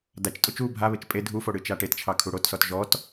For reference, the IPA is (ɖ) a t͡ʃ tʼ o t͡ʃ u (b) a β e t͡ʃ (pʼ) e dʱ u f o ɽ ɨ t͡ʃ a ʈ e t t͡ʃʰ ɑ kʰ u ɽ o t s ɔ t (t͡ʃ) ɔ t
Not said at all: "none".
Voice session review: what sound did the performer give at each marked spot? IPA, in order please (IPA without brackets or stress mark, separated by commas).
d, bʱ, pʼ, ʒ